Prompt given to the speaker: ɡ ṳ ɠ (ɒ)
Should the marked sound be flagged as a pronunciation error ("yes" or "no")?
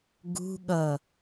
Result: yes